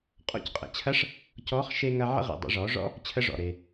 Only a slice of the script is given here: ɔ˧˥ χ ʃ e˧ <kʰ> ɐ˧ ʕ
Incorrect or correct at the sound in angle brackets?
incorrect: ŋ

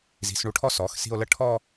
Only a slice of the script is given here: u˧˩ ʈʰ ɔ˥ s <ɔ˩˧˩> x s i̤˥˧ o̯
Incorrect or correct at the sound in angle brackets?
correct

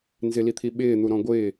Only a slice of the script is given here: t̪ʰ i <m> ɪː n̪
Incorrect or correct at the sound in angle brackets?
incorrect: ɓ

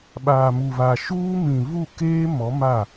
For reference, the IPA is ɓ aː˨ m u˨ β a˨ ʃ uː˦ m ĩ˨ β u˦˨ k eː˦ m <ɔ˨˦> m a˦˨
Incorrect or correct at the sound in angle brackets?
correct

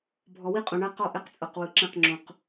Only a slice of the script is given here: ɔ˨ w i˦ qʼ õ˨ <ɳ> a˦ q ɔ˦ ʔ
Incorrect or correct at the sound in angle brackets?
correct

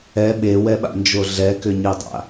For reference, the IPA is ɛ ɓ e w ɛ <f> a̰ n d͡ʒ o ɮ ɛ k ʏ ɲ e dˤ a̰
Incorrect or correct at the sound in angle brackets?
incorrect: ɓ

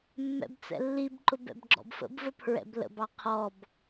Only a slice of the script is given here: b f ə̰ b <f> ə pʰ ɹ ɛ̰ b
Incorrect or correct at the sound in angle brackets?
incorrect: v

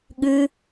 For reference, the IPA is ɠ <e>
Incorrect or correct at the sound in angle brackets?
incorrect: ɨ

